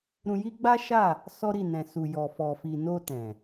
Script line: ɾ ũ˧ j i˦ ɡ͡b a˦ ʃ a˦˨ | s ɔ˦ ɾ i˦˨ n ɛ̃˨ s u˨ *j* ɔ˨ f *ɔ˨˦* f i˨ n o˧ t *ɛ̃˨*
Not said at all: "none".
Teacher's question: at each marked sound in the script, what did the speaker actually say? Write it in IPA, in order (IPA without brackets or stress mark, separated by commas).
j, ɔ˨, ɛ̃˨